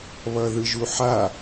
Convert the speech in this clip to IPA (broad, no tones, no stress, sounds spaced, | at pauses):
β ʌ ð ɯ ʒ u ħ a